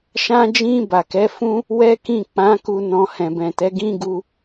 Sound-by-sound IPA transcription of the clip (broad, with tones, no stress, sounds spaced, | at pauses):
ʃ ã˧ d͡ʒ ĩ˧ b a˨ k ɛ˨˦ f ũ˦ | w ɛ˦ k ĩ˦˨ k͡p ã˨˦ k u˧ n ɔ̃˧ h ɛ̃˨ b ɛ̃˨ t ɛ˨˦ ɡ ĩ˦ ɡ u˧